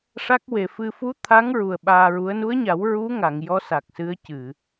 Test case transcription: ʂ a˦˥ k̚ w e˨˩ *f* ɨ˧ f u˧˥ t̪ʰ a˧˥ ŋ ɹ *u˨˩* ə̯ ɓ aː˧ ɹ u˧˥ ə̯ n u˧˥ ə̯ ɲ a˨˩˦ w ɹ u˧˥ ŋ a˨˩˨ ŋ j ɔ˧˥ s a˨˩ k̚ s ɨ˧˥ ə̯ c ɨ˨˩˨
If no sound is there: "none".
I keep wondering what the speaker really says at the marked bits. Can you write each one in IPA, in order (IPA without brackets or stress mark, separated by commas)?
f, u˨˩